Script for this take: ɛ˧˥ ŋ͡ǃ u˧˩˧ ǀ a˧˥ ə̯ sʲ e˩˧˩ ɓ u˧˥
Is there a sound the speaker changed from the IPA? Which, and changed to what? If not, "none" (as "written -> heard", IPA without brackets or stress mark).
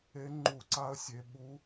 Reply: ɛ˧˥ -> e˧˥